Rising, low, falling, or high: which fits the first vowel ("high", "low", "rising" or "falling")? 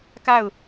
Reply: falling